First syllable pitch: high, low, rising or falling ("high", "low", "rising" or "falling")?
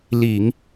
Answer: low